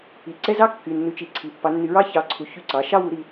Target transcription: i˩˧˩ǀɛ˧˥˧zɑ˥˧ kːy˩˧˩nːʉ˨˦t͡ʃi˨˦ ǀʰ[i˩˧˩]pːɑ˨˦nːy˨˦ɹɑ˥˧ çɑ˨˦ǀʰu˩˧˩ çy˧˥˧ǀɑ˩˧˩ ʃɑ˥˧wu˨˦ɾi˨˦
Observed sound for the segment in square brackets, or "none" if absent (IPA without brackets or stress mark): i˩˧˩